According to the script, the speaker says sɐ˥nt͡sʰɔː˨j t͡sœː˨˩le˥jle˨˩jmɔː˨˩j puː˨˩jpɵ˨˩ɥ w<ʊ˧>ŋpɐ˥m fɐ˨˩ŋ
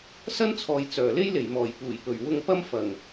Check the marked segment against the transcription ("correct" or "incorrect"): correct